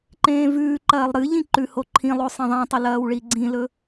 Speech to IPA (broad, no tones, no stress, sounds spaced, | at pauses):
ǃ ẽː v ʉː ǃ ɐː lˠ ɾ ɨ ʎ ĩ ǃ ʉ h o ǃʰ ĩ lˠ o sˤ ẽ ðˤ ẽ tˤ ɐ l ɐː w ɭ i ɡ͡ǀ ĩ l ɵ